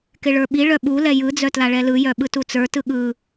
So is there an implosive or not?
yes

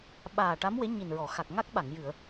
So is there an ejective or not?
no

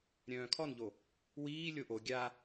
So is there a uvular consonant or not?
no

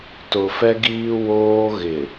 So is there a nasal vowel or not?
no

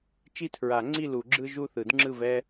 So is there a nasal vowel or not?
no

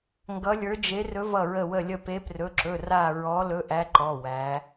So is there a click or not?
yes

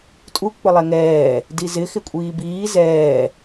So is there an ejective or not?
yes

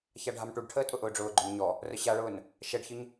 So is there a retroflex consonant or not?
yes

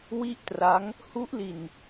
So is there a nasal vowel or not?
no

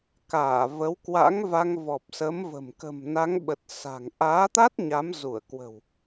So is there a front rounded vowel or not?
no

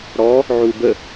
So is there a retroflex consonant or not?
yes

